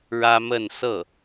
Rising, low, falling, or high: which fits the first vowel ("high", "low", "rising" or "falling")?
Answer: high